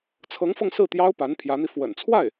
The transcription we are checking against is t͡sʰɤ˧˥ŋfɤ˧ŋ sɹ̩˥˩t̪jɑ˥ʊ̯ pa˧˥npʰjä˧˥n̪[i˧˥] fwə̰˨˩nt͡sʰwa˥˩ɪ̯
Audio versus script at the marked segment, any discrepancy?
yes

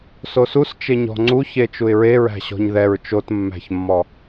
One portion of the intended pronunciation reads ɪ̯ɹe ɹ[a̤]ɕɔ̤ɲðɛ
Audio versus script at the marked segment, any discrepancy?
yes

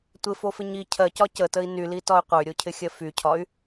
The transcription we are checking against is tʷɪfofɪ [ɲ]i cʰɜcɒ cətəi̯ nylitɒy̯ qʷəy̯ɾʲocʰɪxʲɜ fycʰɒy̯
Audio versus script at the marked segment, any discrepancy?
no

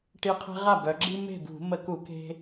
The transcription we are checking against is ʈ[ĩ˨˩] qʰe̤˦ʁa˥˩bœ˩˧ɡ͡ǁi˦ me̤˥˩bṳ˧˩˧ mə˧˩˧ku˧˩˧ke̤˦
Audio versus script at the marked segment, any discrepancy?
yes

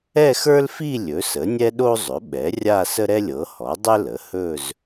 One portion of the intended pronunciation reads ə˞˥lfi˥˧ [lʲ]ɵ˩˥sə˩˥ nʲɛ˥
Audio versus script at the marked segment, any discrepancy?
no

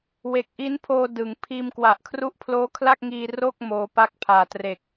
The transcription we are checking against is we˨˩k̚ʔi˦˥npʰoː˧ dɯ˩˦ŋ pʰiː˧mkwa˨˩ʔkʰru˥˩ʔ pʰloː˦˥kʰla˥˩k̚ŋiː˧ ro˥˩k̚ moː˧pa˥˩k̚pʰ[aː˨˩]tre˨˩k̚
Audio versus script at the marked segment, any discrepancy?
no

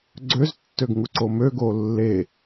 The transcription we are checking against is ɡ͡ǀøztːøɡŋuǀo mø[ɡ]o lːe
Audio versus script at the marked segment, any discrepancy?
no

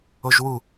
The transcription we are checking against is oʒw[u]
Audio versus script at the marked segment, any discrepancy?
no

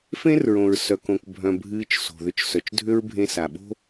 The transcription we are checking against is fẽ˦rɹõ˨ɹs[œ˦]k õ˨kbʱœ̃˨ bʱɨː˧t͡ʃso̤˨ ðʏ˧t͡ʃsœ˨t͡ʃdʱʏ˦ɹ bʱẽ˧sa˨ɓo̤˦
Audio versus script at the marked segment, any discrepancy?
yes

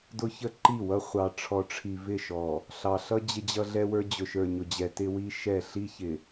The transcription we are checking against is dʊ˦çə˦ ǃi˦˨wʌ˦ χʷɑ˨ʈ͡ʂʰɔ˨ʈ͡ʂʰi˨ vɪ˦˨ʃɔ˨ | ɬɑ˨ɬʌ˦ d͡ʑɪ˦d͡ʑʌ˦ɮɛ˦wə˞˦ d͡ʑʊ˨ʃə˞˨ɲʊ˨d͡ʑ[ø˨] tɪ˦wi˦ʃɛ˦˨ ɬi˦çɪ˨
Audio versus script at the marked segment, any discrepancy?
yes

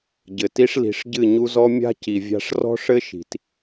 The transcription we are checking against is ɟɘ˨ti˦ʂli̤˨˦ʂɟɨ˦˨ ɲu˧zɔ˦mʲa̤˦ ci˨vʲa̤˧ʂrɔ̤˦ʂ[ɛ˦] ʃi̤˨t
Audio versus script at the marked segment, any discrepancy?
yes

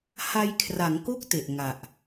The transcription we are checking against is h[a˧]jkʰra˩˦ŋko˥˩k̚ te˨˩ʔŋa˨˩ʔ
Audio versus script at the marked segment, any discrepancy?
no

